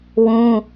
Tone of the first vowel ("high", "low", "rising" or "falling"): high